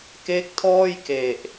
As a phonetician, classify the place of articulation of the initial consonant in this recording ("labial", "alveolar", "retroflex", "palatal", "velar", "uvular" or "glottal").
velar